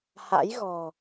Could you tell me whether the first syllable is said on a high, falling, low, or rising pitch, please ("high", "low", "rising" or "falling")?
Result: rising